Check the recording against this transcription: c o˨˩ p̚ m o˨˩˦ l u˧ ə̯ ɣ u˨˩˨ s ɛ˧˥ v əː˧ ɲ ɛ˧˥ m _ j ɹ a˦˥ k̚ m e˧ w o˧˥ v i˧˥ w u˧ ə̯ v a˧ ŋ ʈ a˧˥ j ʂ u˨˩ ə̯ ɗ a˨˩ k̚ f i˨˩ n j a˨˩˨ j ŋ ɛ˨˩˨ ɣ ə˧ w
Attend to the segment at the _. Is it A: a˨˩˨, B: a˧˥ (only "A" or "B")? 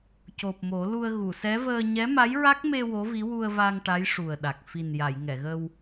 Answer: B